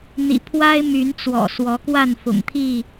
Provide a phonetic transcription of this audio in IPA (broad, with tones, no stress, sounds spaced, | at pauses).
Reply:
n̪ ḭ˨˩ pʰ w a˦ ɪ̯ m y˨˦ n t͡s w ɔ̰˨˩ s w ɔ˨˦ k w a˥˨ n f ʊ̰˨˩ ŋ t̪ʰ i˥˨